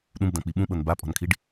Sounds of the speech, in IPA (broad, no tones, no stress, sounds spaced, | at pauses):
ɗ ũ b d ã k͡p i ɓ ũ ɓ ɤ n b a pʼ ɔ̤ n kʰ i ɖ